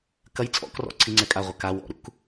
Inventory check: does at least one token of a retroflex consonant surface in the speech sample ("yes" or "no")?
no